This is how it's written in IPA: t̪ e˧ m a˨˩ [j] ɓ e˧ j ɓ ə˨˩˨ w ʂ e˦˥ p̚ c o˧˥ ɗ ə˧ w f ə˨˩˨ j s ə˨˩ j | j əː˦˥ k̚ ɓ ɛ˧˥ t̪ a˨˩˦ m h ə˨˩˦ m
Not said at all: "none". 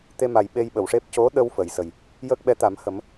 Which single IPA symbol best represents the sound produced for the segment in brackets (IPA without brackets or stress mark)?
j